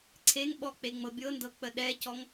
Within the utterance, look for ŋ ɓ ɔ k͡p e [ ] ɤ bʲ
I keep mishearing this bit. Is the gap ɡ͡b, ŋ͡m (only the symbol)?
ŋ͡m